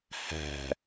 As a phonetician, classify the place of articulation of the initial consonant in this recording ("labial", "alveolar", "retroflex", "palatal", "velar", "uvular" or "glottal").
glottal